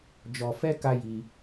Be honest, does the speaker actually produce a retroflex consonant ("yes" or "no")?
no